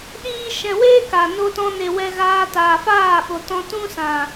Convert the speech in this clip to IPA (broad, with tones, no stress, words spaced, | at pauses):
ɗiː˦ ʃɛ̃˨weː˦ ka˨ no˧tɔ̃˧ne˨ wɛ˧ɣaː˧taː˨faː˦˨ ɓo˨tɔ̃˧ tũ˦sã˨